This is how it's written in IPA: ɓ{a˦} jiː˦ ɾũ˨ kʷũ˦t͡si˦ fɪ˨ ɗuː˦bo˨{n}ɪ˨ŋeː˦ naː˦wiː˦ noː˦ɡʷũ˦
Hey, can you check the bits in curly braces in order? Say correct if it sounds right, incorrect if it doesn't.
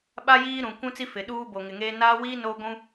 correct, incorrect: ŋ

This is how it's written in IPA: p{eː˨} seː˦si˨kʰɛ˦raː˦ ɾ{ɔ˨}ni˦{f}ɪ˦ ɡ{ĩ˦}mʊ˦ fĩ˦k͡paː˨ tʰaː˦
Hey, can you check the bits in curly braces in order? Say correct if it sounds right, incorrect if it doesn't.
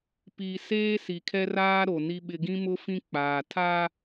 incorrect: iː˨, incorrect: o˨, incorrect: ɓ, correct

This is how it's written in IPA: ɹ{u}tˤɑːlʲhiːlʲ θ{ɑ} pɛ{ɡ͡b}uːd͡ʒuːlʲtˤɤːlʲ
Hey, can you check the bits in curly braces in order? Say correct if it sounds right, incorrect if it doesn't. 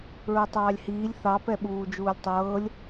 correct, correct, incorrect: ɓ

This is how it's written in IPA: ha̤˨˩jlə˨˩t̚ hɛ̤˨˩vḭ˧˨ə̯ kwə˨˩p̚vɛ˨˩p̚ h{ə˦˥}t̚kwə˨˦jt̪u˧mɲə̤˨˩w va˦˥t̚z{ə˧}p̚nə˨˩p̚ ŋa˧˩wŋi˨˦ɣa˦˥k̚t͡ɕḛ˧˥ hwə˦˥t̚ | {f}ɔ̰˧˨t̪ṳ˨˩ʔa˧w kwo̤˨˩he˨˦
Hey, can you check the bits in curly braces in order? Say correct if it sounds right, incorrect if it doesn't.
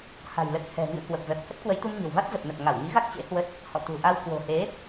correct, incorrect: ə˨˩, incorrect: h

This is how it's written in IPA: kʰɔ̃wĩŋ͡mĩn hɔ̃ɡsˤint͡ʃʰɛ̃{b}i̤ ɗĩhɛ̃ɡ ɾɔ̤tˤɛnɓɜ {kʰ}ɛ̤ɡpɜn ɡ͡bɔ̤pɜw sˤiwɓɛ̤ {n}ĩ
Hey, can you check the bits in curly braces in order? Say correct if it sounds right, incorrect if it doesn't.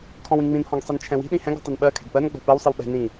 incorrect: w, correct, correct

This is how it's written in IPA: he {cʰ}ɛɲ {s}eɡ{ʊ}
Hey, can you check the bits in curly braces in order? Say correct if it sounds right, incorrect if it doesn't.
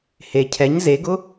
correct, incorrect: z, correct

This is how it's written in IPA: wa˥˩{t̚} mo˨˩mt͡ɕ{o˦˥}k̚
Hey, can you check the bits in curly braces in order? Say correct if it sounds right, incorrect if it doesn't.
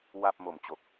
incorrect: p̚, incorrect: o˨˩

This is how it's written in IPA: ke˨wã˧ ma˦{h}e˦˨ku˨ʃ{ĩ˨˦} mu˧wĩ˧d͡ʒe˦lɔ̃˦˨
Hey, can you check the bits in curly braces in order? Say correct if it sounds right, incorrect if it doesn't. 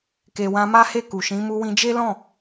correct, correct

